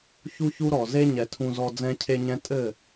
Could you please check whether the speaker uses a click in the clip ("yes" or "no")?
no